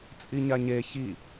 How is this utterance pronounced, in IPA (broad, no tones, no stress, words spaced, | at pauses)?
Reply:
t͡sʼiɲaɲe çi